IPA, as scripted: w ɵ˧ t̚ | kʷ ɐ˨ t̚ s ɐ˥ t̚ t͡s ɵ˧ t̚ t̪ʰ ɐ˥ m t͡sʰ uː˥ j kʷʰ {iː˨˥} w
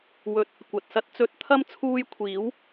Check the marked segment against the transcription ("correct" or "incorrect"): correct